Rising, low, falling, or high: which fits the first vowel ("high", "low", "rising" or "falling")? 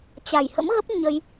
low